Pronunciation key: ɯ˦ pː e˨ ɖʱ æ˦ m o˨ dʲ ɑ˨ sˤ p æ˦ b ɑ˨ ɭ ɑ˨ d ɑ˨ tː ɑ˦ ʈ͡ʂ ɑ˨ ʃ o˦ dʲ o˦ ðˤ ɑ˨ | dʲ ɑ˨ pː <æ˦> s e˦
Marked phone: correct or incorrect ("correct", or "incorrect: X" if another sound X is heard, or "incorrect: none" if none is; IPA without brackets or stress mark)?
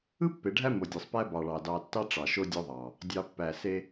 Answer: incorrect: æ˨